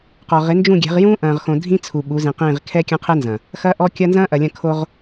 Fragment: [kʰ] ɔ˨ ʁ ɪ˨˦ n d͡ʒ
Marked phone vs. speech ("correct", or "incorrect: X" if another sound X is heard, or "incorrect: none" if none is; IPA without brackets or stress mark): incorrect: q